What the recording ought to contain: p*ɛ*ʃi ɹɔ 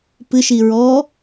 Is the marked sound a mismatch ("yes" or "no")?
yes